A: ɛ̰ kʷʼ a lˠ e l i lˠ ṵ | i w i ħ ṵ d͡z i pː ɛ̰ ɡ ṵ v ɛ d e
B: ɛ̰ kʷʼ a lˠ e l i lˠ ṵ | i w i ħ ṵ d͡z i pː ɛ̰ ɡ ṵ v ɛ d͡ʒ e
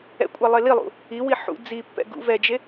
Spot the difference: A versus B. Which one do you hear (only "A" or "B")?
B